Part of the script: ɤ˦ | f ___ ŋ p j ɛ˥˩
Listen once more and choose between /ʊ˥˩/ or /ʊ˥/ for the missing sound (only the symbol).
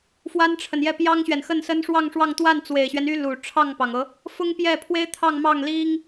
ʊ˥